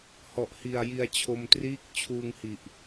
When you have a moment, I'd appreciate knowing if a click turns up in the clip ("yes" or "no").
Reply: no